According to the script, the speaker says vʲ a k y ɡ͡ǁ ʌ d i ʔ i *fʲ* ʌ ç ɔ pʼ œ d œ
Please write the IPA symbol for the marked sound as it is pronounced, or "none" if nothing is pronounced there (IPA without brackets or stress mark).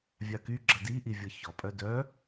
vʲ